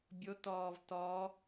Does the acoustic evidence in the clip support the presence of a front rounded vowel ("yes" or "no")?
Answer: no